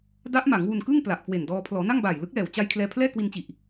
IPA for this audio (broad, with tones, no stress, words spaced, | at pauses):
da˦˥ʔma˩˦ŋ wu˧nkɯ˥˩ŋ pla˨˩ʔkwe˨˩ndɔː˧ pʰlɔː˩˦ na˥˩ŋbaː˨˩jlɯ˦˥k̚lɛː˨˩w t͡ɕa˧j kʰlɛː˧pʰlɛː˥˩kwi˧nt͡ɕi˨˩ʔ